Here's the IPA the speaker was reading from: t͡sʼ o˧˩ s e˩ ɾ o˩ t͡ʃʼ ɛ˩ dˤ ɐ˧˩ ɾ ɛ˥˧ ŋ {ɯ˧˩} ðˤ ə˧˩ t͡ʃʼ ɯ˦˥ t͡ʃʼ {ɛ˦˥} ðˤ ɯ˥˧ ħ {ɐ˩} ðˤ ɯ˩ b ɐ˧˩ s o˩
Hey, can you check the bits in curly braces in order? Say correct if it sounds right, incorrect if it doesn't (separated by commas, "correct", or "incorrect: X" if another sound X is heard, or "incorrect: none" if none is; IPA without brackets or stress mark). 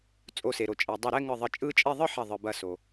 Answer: correct, incorrect: ɛ˥˧, incorrect: ɐ˧˩